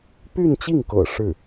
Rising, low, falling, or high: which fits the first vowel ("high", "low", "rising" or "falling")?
falling